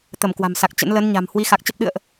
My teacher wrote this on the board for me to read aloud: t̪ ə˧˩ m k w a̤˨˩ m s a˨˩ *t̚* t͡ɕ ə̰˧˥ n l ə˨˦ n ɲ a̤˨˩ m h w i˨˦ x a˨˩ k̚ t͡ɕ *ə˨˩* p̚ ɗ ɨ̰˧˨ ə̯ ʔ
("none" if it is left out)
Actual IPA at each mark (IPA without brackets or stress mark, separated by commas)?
k̚, ə˦˥